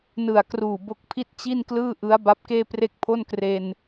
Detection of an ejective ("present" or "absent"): absent